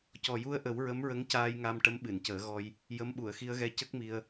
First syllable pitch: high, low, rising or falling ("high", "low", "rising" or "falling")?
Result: low